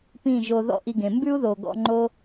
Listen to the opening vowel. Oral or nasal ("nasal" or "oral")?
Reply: nasal